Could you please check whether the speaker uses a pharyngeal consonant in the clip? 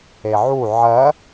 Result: yes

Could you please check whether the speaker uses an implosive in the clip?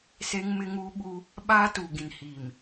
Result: yes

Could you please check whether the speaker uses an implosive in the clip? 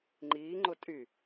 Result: no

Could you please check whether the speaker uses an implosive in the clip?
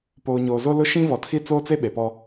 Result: yes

